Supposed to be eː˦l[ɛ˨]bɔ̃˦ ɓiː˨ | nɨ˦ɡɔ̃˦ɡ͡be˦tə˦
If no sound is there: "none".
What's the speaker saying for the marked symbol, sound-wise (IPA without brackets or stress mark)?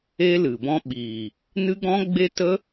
ɨ˨